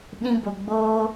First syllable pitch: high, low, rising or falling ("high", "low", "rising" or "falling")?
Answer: high